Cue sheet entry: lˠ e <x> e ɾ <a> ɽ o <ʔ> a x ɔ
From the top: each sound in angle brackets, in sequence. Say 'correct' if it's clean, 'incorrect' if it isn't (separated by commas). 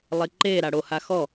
incorrect, correct, incorrect